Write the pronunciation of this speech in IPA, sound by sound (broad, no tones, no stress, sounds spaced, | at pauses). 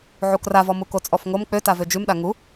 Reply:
ʕ u k r a v ɔ m u k o t͡sʼ ɔ f ŋ o m k͡p ø t a v ø d͡ʒ ʉ m ɗ a ŋ u